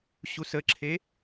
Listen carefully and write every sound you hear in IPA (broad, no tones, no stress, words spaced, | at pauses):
ɕusəǁʰe